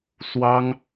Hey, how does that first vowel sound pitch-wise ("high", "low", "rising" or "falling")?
high